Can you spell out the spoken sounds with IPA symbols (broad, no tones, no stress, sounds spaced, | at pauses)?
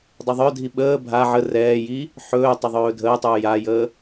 dˤ u ðˤ œ dʱ i ɓ əː bʱ a ʕ ə r ɛː j i | ħ ɵː tˤ ɪ ðˤ ɵː dʱ əː tˤ uː j a j əː